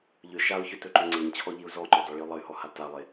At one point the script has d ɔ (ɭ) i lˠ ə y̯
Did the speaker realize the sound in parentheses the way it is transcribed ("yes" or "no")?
yes